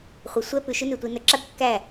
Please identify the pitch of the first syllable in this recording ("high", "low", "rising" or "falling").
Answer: rising